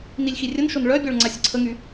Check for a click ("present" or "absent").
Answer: present